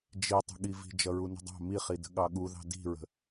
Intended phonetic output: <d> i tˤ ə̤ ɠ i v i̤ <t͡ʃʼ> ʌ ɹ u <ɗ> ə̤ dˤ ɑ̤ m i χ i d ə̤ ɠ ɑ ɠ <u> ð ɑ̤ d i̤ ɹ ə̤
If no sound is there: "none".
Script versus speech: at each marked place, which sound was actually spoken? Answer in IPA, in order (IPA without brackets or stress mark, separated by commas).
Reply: d͡ʒ, d͡ʒ, n, u